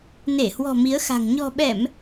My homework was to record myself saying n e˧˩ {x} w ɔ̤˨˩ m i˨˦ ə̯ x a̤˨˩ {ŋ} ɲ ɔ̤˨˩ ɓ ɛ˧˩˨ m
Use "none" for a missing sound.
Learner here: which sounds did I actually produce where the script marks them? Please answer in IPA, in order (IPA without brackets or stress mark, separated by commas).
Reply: h, ŋ